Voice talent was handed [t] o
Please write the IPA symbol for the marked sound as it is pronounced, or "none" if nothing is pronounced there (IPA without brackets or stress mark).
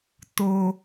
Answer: t